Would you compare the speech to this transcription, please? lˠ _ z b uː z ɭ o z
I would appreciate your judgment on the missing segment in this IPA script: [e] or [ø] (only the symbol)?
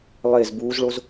e